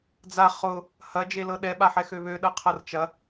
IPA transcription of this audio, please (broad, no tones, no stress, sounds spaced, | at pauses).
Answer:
d͡z a χ ʊ | h ɐ d͡ʒ e l ɤ ɗ ɛ ɓ a ħ ɛ x ø β ø ɗ ɤ qʰ ɤ r t͡ʃ ɐ